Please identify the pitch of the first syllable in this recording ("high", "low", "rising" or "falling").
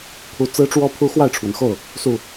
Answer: rising